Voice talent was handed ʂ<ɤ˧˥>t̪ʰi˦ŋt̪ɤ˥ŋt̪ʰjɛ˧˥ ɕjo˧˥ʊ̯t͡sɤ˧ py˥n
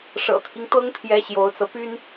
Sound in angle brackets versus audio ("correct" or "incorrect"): incorrect